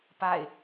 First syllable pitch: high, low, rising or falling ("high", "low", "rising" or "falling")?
falling